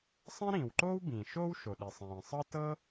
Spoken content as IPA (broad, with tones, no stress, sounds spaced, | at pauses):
sˤ ɛ̃˥ ɾ ĩː˩ w ǃ oː˥ w b ĩː˩ ʃ oː˥ w ʃ o˩ ɗ i˩ sˤ ĩː˩ sˤ ɤ˥ t ɤ˥